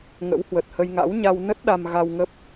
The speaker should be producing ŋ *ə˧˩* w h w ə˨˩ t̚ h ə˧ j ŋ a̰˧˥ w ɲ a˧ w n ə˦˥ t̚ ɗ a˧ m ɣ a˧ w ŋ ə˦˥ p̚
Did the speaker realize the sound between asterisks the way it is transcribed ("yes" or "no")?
no